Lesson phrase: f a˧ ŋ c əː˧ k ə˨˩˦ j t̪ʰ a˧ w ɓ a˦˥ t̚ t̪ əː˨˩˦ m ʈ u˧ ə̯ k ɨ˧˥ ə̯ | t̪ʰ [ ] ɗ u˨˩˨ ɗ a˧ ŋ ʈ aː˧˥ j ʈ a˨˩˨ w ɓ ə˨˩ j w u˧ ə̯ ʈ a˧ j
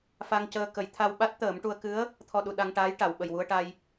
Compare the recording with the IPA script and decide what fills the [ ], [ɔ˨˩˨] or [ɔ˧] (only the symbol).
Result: ɔ˧